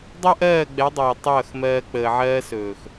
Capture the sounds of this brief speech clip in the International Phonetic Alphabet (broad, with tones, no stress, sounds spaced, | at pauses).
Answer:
dˤ o˦ ʔ ɜː˦˨ ɡ͡b ɛ˨˦ dˤ oː˨ tˤ ʌː˦˨ x m ɜː˧ k͡p əː˨ ʕ ɜː˧ s ɵː˨ x